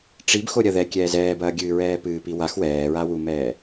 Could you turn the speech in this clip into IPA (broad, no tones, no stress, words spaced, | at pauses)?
ʈ͡ʂib xoɾʲɐðɛ kʲɛːzɛːbɐːɡʲɨː ɹɛːpɨːpiwax wɛːɹawumɛː